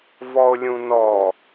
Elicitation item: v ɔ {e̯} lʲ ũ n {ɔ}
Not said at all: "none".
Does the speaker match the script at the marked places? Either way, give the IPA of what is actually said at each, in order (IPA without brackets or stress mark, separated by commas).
o̯, ɔ